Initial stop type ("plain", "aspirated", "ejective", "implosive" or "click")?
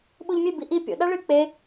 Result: implosive